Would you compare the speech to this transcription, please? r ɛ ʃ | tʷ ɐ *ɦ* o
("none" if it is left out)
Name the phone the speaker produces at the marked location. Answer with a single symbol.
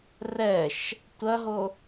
ɦ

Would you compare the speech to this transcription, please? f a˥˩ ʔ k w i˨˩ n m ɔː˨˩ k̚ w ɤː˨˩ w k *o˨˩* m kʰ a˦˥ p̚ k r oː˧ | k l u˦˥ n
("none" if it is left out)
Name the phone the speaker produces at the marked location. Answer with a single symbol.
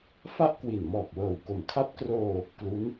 o˨˩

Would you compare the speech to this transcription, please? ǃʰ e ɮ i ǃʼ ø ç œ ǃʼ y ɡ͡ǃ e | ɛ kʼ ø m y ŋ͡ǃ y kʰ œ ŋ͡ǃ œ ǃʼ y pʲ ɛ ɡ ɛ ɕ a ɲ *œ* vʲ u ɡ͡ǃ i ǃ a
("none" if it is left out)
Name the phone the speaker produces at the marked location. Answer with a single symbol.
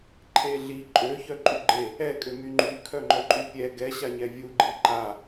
ɛ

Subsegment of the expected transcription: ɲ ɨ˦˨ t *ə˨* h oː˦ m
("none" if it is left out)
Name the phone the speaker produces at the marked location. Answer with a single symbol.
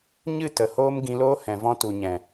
ə˨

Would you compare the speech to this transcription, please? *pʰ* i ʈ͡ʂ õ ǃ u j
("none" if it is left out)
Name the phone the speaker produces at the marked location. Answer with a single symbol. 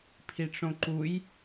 pʰ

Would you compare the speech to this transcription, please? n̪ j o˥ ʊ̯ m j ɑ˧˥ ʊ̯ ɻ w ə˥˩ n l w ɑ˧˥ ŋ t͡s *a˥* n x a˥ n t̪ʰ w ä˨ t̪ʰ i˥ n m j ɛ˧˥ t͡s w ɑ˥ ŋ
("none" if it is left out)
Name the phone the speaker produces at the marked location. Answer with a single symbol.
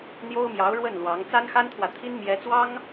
a˥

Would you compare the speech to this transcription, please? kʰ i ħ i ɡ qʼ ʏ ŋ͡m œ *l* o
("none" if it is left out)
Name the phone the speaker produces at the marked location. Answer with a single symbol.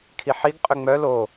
l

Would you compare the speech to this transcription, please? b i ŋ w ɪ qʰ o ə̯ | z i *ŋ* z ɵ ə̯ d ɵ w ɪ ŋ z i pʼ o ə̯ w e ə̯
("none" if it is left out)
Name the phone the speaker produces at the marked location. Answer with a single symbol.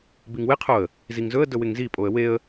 ŋ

